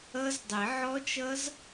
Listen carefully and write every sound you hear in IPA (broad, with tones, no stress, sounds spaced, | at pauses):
ʌ˦˥ z dˤ ɪ˨˩˦ ʕ ɔ˦˥ t͡ʃ ʌ˦˥ z